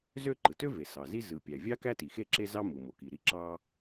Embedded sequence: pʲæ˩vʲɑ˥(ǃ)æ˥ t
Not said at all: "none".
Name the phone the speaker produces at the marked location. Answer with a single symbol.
k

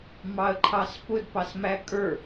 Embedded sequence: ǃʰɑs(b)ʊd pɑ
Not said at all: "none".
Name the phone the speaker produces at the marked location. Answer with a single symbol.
p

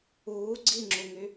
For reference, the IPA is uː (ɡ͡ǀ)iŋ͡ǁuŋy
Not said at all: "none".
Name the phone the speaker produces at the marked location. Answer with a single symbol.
ɡ͡ǀ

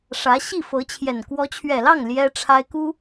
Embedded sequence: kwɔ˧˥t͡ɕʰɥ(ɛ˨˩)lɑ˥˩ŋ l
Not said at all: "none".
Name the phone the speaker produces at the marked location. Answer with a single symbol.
ɛ˨˩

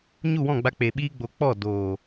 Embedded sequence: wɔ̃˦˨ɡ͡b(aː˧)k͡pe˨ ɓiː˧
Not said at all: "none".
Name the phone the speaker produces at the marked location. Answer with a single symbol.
a˧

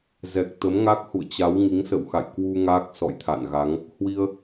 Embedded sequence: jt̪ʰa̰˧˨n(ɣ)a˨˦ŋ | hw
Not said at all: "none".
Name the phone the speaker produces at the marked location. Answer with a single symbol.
ɣ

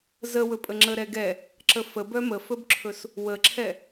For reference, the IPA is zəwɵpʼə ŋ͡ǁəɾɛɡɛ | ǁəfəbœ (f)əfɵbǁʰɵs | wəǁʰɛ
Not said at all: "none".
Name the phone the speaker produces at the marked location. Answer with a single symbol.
m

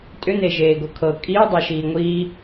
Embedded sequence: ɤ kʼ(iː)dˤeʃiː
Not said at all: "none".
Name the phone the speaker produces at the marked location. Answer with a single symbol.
iː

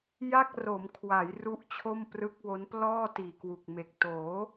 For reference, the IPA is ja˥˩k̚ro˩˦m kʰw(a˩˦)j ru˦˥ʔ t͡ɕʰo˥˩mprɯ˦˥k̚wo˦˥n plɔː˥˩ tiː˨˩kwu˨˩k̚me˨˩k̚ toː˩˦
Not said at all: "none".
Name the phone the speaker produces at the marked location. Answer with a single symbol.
a˩˦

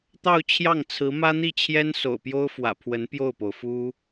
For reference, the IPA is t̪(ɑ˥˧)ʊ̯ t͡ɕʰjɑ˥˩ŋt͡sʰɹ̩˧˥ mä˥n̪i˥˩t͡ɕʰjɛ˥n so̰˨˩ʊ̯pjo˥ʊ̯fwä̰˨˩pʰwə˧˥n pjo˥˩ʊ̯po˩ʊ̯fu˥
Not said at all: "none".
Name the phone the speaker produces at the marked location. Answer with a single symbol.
ɑ˥˧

